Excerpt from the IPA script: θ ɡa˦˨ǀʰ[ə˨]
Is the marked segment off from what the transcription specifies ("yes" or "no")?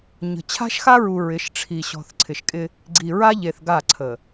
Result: no